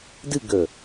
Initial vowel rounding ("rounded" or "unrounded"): unrounded